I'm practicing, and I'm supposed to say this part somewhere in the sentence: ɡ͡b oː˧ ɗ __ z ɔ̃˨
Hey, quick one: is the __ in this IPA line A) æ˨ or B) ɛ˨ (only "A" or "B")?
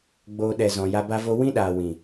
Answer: B